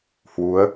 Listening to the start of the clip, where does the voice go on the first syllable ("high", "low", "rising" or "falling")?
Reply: rising